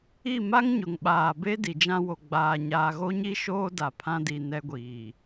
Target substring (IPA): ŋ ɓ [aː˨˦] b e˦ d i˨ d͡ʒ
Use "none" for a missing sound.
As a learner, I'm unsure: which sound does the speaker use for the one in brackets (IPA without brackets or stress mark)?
aː˨